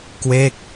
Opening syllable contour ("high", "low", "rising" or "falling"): falling